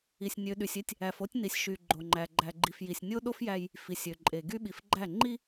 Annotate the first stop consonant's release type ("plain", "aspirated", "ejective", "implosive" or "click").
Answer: implosive